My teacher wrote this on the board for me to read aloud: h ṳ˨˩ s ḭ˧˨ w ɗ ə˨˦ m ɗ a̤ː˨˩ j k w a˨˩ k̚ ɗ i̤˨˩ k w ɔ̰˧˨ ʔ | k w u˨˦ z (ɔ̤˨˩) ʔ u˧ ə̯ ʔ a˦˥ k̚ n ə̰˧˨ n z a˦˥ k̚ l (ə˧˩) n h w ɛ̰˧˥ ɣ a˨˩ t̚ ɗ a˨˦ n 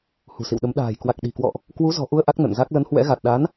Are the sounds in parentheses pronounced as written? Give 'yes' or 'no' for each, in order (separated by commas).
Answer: yes, no